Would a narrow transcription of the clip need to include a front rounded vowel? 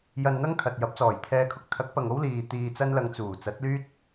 yes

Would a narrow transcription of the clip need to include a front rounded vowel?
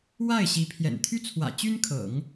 yes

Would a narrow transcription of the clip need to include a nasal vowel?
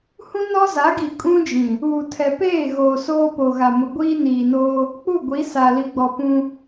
yes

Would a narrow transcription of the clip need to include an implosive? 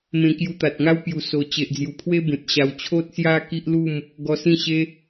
no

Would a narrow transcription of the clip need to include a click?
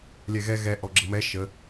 yes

